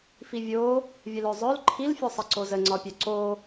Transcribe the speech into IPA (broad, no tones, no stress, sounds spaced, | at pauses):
f i vʲ o | vʲ ə l œ zˤ œ l ǃʰ i l fʲ o sˤ ə ǀ o z ə ŋ͡ǀ ɒ pʲ œ ǀ o